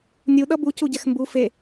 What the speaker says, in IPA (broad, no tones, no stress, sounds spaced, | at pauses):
nʲ u ɗ ʌ b u c u ɟ ɛ x m b u f e